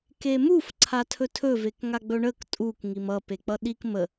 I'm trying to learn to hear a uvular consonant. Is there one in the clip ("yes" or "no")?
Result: no